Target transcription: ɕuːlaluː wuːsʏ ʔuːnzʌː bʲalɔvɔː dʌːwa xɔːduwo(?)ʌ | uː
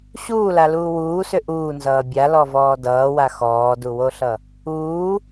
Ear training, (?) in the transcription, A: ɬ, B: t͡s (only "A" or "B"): A